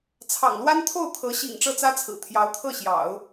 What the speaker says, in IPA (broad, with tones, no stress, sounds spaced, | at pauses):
t͡sʰ ɑ̰˨˩ ŋ l w a˥ n t̪ʰ o˥˩ ʊ̯ t̪ʰ ɤ˧˥ ɕ ḭ˨˩ ŋ ʈ͡ʂ ɤ˥˩ t͡s ä˥ t͡sʰ ɹ̩˨˩ t̪ʰ j ɑ˧˥ ʊ̯ t̪ʰ ɤ˥˩ ɕ j ɑ̰˨˩˦ ʊ̯